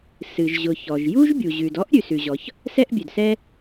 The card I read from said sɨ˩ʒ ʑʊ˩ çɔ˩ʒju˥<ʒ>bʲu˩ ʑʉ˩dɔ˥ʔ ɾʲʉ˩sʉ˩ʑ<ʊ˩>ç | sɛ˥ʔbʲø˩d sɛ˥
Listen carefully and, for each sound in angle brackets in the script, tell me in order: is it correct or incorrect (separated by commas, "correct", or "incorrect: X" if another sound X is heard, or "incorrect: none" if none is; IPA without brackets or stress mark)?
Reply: correct, incorrect: ɔ˩